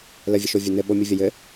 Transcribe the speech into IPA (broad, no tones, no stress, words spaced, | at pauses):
ləvʲəʃovʲɐ nɘ ɓomʲuvʲɐjɘ